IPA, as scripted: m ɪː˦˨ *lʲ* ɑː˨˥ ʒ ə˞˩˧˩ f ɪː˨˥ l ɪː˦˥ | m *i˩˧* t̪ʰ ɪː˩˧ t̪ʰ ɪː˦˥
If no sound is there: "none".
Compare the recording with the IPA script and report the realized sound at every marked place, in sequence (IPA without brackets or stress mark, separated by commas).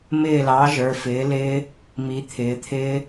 l, i˩˧